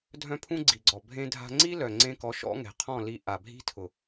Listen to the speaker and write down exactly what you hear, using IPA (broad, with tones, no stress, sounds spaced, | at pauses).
dʱ œ̃˦ pʰ ũ˦ ɡ͡ǀ i˨ ɡ͡ǀ ɔ˨ bʱ ẽ˦ dʱ a̤˦ ŋ͡ǀ i˦ l œ˨ ŋ͡ǀ ẽ˧ k ɔ˨˦ ʃ ɔ̰˦ ŋ ɛ̤˨ qʰ ɔ̃˦˨ l i˧ ʔ a˨ bʱ i̤˦ tʰ ʊ˨